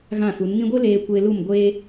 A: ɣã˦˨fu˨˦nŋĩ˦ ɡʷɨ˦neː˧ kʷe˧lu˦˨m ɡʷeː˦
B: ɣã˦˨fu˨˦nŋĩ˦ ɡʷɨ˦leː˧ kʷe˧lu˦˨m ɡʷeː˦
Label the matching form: B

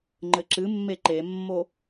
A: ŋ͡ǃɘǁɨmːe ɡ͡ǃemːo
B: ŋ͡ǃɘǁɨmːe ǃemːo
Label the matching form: B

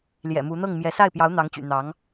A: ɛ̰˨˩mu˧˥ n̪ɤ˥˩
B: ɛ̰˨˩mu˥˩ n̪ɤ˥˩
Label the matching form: A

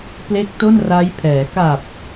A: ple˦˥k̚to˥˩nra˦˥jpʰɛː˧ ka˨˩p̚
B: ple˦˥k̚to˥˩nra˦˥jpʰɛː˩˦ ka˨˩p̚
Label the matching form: B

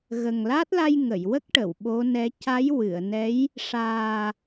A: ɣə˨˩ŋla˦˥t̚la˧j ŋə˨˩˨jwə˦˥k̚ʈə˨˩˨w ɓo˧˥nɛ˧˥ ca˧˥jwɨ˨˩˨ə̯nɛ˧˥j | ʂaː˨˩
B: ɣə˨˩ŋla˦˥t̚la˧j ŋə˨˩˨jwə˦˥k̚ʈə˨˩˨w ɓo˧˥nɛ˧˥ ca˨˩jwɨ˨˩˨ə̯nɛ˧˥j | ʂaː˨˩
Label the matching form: A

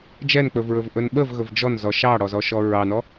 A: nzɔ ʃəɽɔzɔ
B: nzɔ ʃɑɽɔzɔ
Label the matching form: B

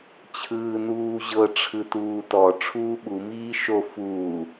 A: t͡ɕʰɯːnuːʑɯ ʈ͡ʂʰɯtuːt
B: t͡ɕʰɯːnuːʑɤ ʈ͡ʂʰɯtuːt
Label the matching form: B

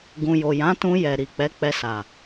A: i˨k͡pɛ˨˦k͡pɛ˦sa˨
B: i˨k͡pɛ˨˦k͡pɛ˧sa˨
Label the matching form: B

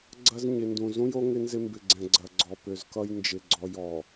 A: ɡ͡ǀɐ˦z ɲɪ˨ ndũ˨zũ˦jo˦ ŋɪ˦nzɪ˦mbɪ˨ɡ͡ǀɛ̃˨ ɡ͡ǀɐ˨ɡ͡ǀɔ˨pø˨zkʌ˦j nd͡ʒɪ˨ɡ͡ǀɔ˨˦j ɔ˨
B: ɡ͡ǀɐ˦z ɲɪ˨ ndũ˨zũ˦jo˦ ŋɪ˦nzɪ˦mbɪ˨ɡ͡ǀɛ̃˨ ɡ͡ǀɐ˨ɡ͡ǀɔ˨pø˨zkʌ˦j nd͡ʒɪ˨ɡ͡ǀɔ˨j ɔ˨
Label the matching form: B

